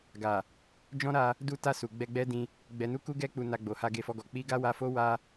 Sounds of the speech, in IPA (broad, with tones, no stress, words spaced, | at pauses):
ɡa˨ | d͡ʒɔ̃˦ɾa˧ | du˦ta˦˨su˨ ɡ͡bɛ˧ɡ͡bɛ˦dĩ˧ | ɡ͡bɛ˧nu˦ ku˦ɡɛ˦ k͡pu˧na˧ɡ͡bo˨ha˧ ɡe˧fɔ˧ɡɔ˨ k͡pi˧ ɡa˦wa˧fo˦ wa˧